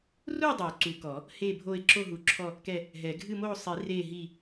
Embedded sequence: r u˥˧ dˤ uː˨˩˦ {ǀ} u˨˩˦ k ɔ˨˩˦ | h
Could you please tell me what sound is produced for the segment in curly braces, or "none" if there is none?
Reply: ǀ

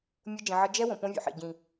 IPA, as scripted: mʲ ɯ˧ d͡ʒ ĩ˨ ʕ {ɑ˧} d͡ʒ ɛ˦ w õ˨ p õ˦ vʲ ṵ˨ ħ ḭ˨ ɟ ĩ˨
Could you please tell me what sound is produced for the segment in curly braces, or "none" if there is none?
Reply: ʌ˧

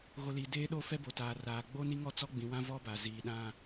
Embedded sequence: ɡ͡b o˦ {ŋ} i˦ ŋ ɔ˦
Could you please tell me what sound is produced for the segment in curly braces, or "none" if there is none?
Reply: n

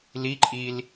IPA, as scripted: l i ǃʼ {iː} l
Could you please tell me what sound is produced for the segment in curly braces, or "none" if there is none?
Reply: iː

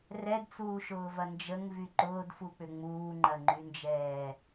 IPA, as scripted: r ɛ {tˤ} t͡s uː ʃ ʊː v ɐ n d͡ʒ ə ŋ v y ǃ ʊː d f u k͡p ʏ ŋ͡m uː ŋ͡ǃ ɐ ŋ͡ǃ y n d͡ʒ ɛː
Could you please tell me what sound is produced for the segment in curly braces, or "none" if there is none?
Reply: d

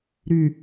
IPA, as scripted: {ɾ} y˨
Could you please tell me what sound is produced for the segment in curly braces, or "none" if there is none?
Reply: ɾ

